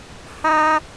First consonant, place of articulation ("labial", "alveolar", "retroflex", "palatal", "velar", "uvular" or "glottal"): glottal